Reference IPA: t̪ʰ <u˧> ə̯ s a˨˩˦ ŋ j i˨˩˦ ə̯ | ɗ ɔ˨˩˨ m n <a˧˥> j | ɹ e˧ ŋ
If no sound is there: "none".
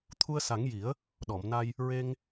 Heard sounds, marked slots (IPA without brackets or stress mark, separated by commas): u˧, a˧